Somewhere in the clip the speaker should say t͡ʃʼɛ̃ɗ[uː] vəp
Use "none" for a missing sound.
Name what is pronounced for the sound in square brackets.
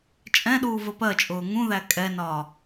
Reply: uː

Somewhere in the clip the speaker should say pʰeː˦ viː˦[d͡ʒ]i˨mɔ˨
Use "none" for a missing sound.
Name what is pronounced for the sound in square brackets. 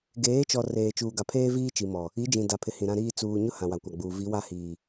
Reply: t͡ʃ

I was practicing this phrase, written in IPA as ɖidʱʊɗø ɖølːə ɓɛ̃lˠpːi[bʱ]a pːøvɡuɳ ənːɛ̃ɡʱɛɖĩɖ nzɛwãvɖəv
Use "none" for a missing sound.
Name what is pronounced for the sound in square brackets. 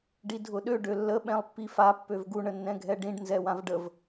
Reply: f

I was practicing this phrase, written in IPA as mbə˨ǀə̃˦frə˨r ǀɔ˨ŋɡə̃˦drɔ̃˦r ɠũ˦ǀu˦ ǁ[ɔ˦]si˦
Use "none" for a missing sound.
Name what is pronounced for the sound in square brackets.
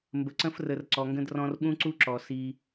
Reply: ɔ˨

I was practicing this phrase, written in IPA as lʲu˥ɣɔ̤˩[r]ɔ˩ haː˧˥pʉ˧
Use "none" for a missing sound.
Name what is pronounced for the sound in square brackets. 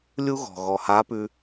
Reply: ɣ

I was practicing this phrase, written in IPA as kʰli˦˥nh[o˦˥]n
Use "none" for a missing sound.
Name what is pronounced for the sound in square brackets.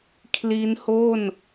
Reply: o˥˩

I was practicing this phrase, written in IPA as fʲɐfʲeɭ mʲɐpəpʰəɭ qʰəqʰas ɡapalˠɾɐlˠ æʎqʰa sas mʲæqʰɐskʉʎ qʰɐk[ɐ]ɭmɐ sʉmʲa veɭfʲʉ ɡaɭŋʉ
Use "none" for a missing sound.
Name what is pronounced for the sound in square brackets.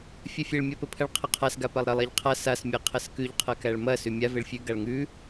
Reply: æ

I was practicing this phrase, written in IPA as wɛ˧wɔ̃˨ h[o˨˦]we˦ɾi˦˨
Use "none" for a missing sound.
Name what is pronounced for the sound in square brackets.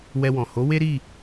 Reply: o˨˦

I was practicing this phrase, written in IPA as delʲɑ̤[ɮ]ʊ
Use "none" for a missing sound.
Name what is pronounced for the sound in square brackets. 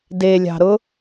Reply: ɾ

